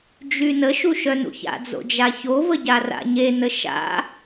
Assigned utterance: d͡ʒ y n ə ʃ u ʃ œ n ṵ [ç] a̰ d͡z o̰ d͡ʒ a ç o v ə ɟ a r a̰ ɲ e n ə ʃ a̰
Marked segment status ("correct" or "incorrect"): correct